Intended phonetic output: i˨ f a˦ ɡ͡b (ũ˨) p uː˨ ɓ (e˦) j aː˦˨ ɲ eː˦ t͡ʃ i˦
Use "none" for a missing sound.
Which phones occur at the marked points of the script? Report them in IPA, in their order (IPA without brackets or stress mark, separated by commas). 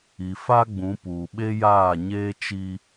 ũ˨˦, e˦